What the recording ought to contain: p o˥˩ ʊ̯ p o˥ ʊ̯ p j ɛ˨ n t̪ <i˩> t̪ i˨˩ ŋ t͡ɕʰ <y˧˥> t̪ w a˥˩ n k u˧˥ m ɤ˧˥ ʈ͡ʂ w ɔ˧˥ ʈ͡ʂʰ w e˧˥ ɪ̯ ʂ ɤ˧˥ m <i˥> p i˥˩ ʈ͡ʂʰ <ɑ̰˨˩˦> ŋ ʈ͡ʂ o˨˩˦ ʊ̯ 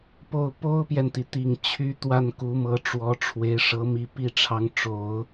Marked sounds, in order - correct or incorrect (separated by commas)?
correct, correct, incorrect, incorrect